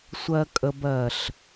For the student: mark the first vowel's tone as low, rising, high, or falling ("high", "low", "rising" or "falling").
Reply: low